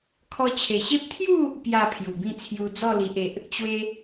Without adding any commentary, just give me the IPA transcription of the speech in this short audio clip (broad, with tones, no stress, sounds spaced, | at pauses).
kʰ ɔ˧ t͡ɕʰ e˨˩ ɕ e˦ p̚ t̪ʰ j u˥˧ | p j a˥˧ pʰ j u˨˩ b ĩ˥˧ t͡sʰ j u˧ d͡z ɔ˥˧ l i˨ ʔ e˨ ʔ | t͡ɕ w e˦